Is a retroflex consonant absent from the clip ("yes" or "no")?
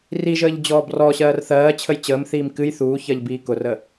yes